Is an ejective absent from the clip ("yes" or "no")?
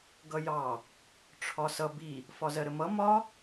yes